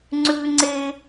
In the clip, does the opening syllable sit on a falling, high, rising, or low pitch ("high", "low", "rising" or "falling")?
high